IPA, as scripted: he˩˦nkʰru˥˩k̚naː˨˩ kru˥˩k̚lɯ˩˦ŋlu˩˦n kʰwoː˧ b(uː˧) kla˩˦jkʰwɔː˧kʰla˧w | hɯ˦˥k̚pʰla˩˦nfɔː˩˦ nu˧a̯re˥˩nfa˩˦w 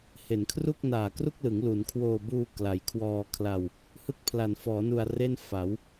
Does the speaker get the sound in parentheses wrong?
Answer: no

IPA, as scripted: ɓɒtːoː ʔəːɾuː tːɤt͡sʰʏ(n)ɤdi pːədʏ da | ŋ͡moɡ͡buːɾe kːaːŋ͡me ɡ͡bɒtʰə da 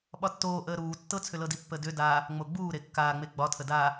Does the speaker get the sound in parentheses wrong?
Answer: yes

